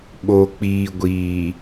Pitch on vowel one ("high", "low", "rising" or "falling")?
low